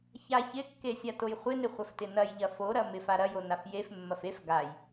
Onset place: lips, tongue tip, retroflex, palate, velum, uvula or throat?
palate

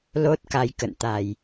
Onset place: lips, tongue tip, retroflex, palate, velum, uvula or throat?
tongue tip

